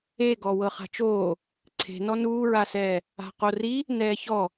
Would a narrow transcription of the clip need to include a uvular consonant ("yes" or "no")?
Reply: yes